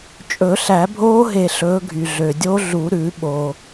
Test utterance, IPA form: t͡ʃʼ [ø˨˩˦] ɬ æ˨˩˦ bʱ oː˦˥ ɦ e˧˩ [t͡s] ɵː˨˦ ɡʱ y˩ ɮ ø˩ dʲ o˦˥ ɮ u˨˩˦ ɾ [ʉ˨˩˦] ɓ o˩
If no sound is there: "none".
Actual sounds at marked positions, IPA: ɵ˨˩˦, ɬ, ʉ˨˩˦

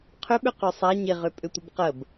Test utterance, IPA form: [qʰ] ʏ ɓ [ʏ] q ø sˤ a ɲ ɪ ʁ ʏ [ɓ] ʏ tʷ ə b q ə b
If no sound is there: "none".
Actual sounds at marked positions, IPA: qʰ, ʏ, pʼ

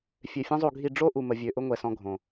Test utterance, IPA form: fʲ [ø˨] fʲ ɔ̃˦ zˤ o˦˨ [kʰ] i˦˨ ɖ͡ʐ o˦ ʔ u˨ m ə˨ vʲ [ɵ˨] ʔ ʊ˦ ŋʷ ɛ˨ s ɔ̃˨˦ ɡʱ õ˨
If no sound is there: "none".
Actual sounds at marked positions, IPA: ø˨, ɡʱ, ø˨

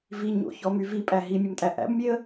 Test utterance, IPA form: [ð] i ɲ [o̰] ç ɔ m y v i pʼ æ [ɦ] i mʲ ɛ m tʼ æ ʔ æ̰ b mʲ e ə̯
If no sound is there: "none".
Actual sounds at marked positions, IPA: v, o̰, ɦ

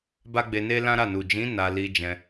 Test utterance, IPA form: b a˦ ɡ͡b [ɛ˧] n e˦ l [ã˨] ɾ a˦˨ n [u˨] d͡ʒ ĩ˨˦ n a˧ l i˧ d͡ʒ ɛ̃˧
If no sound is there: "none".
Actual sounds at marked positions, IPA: e˧, ã˦, u˨

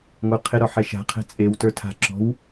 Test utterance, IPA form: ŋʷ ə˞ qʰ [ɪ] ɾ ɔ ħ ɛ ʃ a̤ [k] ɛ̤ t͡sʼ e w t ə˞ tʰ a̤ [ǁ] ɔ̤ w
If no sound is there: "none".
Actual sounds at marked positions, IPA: ɪ, qʰ, ǁ

